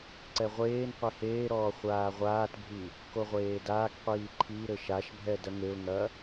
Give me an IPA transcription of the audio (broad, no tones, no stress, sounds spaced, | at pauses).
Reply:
ǀ ɛ ʁʷ eː n qʷ e h eː ɾ ɔː χʷ aː ʁʷ aː t bʱ i | k o ʁʷ eː d aː k qʷ iː ǃʰ i ɾ ɘ ʃ a ʃ bʱ ɛ d ɐ ŋ e ʊ̯ ŋ ɐ